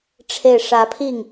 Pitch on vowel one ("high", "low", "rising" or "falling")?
falling